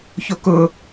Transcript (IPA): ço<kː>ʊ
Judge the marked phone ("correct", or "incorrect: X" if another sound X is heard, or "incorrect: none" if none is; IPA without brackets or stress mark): incorrect: k